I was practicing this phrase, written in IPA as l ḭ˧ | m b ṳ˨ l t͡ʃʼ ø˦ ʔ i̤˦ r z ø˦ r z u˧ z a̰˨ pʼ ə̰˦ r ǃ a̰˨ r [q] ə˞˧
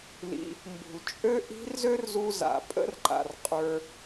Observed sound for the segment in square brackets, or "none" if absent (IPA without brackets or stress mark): qʼ